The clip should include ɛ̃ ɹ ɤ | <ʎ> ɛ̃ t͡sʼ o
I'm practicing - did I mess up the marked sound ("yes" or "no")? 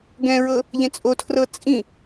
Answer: no